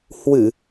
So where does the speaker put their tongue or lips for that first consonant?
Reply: throat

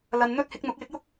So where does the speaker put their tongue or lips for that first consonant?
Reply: tongue tip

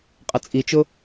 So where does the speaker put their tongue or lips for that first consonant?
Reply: uvula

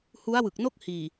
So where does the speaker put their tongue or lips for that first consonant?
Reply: throat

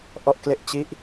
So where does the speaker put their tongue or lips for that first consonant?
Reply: throat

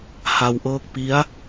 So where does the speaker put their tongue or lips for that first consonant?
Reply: throat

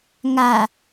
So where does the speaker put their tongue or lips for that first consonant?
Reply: velum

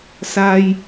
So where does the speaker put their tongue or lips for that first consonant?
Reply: tongue tip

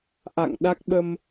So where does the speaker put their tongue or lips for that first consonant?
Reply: throat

